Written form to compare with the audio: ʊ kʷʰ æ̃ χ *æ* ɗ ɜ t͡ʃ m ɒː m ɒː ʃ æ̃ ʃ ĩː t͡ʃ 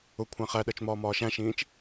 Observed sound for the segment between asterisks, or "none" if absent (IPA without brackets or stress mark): æ